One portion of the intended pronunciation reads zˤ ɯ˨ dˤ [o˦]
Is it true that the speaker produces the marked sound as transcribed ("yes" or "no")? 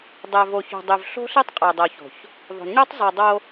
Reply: yes